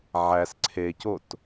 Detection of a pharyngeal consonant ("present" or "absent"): present